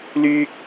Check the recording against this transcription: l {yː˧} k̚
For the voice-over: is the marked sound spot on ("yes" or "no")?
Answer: no